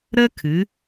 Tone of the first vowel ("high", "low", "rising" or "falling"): high